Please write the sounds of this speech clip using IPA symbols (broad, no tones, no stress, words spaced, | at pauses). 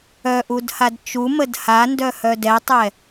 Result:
œʔudhad t͡ʃuməd handœhœ dɛtˤɛ